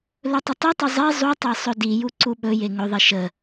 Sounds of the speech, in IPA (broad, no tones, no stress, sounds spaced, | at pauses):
l ɵ tˤ ə tˤ i tˤ ɵ zˤ e zˤ u tˤ e sˤ ɵ d i j u ǀ u ɓ ɵ j e ŋ ɵ ðˤ i ʃ ə